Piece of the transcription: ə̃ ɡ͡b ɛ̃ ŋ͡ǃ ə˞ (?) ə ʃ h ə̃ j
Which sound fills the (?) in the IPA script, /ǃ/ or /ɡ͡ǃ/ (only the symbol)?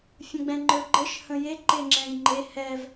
ɡ͡ǃ